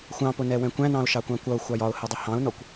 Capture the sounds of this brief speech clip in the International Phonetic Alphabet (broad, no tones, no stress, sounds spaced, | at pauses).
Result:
xʷ ɑ̃ p ʊ n ɛ w ɛ̃ kʷ æ̃ n ɑ̃ ʊ̯ ʃ ɑ kʷ ɑ̃ kʷ ʌ ʊ̯ xʷ ɑ j ɒ ʊ̯ h ɛ dˤ ʊ h ɑ̃ ʊ̯ n ɔ kʷ